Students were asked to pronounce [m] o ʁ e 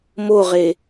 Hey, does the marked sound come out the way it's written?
yes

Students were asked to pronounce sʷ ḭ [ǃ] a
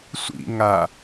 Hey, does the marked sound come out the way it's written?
no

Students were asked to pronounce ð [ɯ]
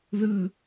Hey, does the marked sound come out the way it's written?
yes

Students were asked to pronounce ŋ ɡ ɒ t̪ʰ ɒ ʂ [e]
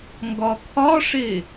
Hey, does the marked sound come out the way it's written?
yes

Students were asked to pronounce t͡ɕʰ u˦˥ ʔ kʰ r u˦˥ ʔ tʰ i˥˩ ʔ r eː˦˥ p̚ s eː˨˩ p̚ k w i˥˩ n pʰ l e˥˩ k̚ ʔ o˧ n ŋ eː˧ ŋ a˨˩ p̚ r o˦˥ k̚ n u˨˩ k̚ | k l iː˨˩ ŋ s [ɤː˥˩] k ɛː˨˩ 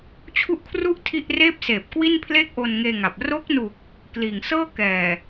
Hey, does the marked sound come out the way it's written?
yes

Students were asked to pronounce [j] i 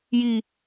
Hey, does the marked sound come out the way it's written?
yes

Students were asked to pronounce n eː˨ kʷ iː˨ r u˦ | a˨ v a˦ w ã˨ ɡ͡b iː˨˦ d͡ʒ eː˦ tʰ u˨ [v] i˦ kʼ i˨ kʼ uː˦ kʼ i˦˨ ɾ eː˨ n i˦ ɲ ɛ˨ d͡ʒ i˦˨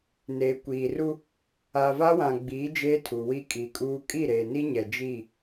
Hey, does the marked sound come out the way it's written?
no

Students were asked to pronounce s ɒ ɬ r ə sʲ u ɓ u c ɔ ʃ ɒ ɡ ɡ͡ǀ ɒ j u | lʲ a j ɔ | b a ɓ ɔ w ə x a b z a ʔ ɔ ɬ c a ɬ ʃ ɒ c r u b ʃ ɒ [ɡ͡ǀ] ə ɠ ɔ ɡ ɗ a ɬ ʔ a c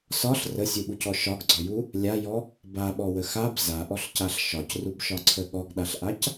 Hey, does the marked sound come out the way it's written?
no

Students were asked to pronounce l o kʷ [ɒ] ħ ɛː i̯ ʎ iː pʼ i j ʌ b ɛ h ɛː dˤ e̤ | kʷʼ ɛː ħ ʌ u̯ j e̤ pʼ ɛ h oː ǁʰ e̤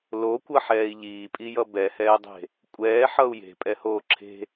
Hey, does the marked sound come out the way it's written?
no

